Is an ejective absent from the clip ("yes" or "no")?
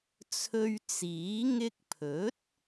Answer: yes